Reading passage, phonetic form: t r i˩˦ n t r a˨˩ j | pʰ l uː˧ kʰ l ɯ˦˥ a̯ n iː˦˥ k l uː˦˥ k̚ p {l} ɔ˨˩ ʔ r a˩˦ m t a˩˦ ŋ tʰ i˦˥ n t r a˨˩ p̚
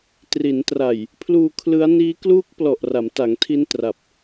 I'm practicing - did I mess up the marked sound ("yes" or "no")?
no